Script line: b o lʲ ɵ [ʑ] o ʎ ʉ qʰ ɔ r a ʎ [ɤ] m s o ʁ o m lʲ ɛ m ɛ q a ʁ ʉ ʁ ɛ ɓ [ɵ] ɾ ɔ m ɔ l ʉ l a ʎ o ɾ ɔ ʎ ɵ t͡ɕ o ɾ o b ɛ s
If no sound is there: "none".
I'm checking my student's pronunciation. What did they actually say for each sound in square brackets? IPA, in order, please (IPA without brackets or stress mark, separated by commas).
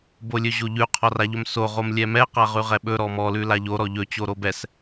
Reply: ʑ, ɵ, ɵ